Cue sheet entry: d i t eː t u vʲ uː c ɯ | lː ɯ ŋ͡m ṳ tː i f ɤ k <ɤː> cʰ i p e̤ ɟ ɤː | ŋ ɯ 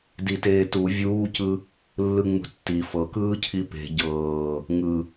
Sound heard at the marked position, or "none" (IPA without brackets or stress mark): ɯː